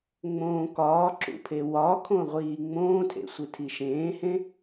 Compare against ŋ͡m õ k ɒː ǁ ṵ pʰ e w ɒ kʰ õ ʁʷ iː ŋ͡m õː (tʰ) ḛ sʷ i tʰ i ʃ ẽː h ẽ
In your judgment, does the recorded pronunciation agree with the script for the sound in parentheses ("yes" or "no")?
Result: yes